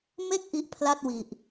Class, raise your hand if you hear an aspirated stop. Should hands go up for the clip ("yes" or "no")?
yes